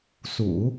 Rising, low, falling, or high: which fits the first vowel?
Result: low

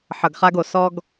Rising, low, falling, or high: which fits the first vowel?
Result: low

